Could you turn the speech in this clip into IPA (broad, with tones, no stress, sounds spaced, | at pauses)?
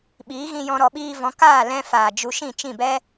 ɓ iː˨˦ ɣ ĩ˧ j ɔ̃˧ ɾ ɔ˨ ɓ iː˧ v ɔ̃˨˦ k aː˦˨ l ɛ̃˧ f aː˨ d͡ʒ u˧ ʃ ĩ˦˨ t͡ʃ ĩ˦˨ b ɛ˦